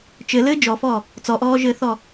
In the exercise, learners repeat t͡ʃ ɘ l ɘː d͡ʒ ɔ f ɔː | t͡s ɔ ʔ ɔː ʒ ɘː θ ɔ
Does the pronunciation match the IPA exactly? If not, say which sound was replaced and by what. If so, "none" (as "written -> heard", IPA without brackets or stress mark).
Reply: none